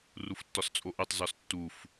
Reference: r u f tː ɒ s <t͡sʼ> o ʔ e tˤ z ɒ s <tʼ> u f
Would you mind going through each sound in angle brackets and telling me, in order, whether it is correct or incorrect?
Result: correct, incorrect

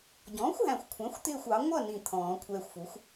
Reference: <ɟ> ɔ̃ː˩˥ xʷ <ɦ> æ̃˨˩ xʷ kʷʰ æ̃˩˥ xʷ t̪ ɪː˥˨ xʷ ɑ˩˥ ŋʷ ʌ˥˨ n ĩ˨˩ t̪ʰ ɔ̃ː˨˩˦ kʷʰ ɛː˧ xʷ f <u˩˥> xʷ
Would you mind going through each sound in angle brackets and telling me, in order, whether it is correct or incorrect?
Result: correct, correct, correct

